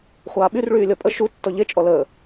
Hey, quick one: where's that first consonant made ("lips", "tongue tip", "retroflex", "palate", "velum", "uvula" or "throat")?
uvula